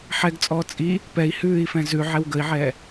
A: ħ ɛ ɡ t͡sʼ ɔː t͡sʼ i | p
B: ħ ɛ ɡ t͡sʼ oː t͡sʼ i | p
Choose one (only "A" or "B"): A